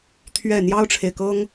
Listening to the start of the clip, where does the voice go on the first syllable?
falling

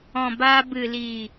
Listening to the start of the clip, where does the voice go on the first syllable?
low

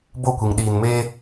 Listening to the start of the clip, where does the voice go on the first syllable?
falling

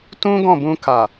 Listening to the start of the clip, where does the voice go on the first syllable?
high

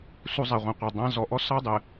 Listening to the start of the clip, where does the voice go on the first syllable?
high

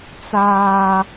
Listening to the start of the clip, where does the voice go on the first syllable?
high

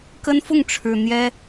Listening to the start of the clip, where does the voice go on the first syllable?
high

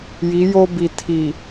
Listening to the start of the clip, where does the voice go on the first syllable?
rising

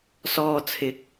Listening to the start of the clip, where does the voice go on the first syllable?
low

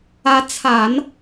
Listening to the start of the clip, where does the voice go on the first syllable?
rising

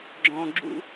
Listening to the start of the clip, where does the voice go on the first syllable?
low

